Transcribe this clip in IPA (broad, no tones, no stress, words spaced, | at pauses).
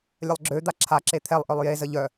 lʲəlˠɡ͡ǁø d̪aǁʰa ǁet̪ʰɛlˠʔœlˠ jezə ʎœ